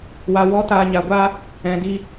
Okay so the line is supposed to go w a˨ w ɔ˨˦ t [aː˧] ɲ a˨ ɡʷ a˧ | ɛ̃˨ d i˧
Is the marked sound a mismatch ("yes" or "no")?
yes